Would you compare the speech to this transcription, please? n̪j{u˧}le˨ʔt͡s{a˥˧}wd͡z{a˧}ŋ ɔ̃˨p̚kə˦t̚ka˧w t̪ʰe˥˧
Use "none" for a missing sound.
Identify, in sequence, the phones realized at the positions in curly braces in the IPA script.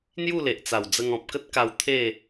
u˥˧, a˨˩, ə˧

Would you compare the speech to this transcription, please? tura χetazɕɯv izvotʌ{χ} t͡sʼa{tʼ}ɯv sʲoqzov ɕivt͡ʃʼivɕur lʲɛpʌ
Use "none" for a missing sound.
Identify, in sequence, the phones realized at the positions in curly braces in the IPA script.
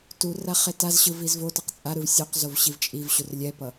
q, ɾ

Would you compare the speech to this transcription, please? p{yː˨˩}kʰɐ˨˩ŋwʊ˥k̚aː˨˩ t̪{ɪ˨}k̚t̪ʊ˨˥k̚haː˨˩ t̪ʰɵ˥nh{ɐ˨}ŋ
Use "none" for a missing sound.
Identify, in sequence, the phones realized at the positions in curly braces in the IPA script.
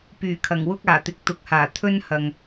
yː˨˩, ɪ˨, ɐ˨

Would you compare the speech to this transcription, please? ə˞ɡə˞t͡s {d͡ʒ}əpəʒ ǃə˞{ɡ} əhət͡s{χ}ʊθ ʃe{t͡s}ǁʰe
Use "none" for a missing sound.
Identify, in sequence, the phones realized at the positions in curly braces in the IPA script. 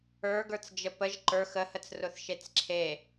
d͡ʒ, x, r, t͡s

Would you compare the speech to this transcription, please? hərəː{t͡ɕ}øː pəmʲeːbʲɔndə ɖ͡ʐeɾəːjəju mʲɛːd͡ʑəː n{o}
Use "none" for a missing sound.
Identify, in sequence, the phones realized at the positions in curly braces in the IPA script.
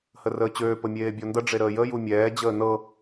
t͡ɕ, ɤ

